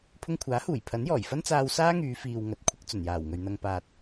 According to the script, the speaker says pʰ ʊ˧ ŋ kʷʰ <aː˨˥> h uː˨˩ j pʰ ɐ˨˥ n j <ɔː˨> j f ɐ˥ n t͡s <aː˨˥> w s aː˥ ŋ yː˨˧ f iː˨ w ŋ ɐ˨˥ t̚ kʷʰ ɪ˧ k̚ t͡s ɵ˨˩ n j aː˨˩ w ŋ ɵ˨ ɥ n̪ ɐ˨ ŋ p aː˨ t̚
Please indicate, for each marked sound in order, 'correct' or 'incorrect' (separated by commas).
correct, incorrect, incorrect